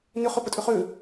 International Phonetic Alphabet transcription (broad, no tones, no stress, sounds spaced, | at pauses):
n ʏ χ ø p ə tʼ ʏ χ ø